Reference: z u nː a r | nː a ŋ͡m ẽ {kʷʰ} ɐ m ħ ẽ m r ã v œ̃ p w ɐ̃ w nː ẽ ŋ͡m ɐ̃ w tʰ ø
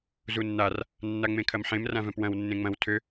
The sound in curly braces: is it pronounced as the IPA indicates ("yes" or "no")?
no